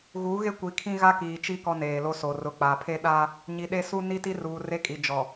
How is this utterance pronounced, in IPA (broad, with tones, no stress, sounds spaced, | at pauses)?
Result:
ɣ uː˨˦ ɣ e˦ kʷ i˨ kʰ ĩ˦ ɣ a˦ k iː˨ t͡ʃ i˦ k ɔ˦ n eː˨ l o˦ s o˨ r ʊ˨ k͡p a˨ pʰ e˦ ɗ aː˦ | ɲ i˨ ɗ e˦ s u˦ n i˦ t i˦ r uː˨ r e˦ kʼ i˨ d͡ʒ ɔ˨